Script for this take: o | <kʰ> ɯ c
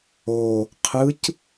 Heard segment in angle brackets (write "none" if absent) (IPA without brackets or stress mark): qʰ